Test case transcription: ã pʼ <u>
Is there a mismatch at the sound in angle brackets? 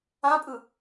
yes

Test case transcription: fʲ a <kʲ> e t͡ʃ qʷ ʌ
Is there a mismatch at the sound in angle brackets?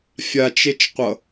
yes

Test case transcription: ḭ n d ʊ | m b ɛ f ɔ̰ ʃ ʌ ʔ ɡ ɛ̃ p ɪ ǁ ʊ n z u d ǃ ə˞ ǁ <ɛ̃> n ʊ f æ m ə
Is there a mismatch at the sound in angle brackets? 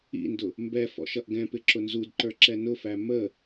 yes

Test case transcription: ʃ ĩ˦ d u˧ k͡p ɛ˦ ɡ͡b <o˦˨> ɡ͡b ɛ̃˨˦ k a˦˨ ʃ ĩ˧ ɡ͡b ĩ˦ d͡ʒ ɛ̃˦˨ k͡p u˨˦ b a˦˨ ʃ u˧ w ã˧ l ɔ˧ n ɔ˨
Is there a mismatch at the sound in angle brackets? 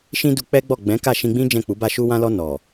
yes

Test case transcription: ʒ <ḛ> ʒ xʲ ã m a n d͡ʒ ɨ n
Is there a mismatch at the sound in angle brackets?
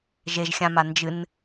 yes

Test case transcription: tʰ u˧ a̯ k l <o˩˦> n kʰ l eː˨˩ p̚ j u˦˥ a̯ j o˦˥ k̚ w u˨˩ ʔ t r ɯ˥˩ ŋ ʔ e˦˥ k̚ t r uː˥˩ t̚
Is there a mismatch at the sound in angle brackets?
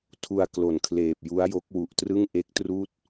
no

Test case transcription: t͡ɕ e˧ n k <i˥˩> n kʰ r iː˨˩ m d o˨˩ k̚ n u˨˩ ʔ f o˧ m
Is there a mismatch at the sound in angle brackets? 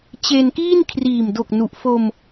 yes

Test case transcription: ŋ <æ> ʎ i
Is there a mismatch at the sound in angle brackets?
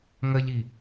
yes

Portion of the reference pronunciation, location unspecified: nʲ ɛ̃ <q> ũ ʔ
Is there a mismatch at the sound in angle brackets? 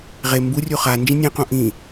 no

